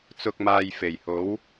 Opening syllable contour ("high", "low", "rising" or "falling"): low